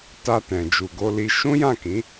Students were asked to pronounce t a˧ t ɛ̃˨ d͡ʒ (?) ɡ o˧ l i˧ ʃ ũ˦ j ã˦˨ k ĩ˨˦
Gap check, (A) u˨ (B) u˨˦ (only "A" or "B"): A